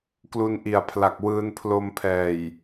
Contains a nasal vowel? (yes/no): no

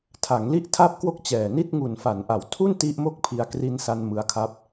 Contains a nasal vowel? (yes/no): no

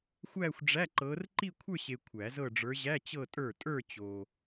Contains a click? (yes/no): yes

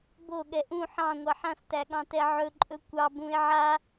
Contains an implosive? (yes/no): yes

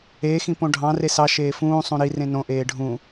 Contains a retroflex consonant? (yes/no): yes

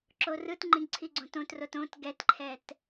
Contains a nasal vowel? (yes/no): yes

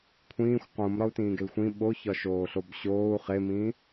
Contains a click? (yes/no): no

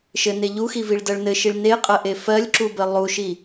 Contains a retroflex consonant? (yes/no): yes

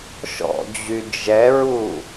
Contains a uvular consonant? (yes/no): no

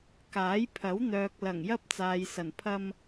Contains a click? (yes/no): no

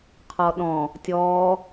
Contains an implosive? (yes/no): yes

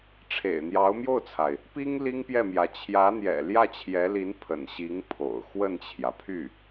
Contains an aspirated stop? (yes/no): yes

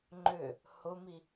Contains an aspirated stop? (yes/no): no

